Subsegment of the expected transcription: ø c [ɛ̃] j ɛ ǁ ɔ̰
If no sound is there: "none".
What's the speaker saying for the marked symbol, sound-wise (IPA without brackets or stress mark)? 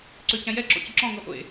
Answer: ɛ̃